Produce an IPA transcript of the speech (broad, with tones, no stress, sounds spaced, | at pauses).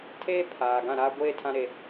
tʰ eː˦ pʰ aː˨ ɡ ã˦˨ ɾ aː˦ ɡʷ eː˦ tʰ ã˦ ɾ e˦